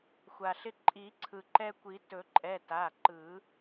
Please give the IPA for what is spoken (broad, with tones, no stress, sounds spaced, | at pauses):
xʷ a˩ ɬ ɪ˦ ǃʼ i˨˩˦ ǀʰ ɯ˩ ǃ ɛ˦ kʷ i˨˩˦ t ɵ˨˩˦ ǃʼ ɛ˩˧˩ t a˩˧˩ ǃ ɯ˨˩˦